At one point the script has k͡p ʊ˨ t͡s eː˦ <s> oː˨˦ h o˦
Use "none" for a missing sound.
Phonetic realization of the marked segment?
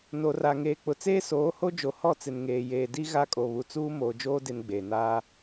s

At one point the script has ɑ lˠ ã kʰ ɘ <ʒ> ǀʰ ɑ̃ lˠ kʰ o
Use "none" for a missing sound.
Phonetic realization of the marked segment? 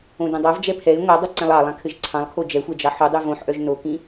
ʒ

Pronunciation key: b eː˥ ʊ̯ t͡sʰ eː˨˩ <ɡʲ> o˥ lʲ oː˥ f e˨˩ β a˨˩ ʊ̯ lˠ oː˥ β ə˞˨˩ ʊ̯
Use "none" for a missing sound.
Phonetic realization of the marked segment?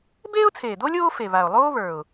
d̪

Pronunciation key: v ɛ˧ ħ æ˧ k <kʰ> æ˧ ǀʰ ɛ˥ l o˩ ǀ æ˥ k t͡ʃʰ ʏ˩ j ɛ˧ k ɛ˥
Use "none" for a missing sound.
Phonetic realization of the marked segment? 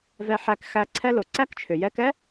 x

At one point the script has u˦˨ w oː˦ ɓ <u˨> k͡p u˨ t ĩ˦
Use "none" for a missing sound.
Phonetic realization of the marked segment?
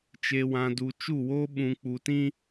ũ˨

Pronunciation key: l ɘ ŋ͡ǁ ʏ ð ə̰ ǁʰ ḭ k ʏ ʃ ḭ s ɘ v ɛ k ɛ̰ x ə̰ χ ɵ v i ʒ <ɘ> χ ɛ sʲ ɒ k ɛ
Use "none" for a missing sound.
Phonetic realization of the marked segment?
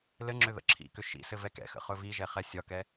ɛ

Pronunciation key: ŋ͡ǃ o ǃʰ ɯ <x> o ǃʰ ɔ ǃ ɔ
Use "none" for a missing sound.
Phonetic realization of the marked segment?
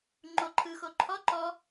x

